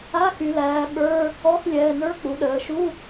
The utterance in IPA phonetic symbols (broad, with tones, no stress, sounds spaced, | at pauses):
a˧˥˧ x y˩˧ l æː˩˧ ɓ ə˞˧˥˧ | ɔ˧˥˧ x lʲ ɛː˩˧˩ n ə˞˧˥˧ k͡p u˩˧ ɗ əː˩˧ ʃ u˧˥˧